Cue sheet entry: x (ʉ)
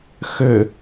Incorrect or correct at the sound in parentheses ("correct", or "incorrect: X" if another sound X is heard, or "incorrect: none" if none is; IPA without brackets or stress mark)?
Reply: incorrect: ø